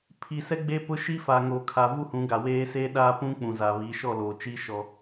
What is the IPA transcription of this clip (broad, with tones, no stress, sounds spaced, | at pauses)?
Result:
pʰ i˨ s ɛ˦ ɡ͡b e˦ p ʊ˦ ʃ i˦ f a˨ ŋ oː˨ kʰ a˨ v u˦ h ũ˨˦ ɡ a˨ w eː˦ s e˦ ɗ a˦ p ũ˦ k͡p ũ˨ z a˨ β i˨˦ ʃ ɔ˦˨ l oː˨ t͡ʃ i˦ ʃ ɔ˦